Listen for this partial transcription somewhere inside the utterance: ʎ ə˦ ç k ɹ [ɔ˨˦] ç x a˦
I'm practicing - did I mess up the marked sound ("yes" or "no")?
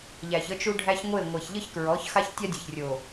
no